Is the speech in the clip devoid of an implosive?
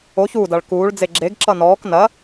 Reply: yes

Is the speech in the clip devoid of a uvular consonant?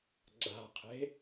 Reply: no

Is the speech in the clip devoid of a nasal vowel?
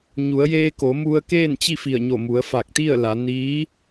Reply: yes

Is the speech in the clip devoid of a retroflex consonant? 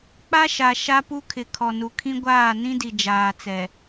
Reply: yes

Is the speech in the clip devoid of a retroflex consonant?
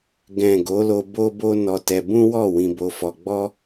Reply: yes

